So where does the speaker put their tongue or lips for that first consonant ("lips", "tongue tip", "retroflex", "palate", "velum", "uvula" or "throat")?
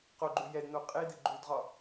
uvula